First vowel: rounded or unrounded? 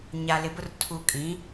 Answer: unrounded